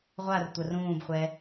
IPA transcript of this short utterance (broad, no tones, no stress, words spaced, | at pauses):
ʁʷar tʷɐrũːbχʷɛ